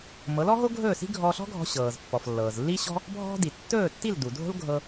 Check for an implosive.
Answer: absent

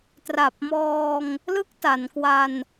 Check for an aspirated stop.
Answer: absent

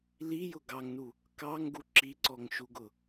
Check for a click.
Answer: present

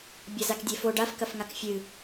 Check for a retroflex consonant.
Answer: present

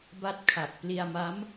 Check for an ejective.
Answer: absent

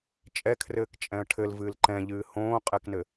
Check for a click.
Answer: present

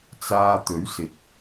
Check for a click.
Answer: absent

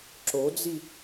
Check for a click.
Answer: present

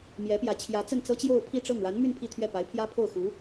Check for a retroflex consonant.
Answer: present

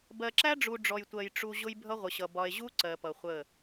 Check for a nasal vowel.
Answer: absent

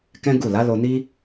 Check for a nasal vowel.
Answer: present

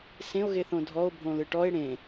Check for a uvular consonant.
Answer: absent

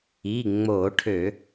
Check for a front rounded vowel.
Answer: present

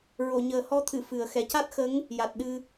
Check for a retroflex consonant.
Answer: absent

